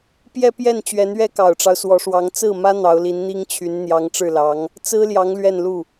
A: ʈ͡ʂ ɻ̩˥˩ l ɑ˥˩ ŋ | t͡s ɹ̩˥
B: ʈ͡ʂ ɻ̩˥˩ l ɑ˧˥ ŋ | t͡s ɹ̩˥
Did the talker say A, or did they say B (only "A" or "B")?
B